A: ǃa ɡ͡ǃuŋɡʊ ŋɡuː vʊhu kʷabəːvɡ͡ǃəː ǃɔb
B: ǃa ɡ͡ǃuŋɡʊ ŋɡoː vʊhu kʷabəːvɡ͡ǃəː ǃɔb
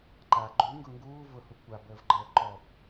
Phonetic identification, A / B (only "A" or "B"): A